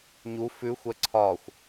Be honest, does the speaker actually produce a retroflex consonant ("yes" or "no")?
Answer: no